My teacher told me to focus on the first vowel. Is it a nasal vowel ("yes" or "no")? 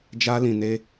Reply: no